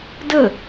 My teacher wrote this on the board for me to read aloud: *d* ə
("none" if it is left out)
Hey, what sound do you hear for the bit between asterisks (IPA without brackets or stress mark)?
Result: d